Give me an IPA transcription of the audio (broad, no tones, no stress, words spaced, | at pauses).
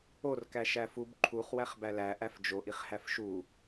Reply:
or kæʃæfub ǃʰuχ wæχbælæ ʔæfd͡ʒoʔ iχhæfʃu